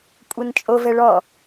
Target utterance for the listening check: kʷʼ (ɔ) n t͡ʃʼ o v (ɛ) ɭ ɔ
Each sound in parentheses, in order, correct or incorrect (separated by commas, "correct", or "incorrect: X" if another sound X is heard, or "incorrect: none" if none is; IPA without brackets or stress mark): incorrect: ɤ, correct